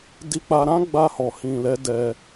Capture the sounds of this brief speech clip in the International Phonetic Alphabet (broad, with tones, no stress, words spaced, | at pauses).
di˧k͡pa˧ɾã˦ ɡ͡ba˧hɔ˨ hĩ˨lɛ˨˦ dɛ˧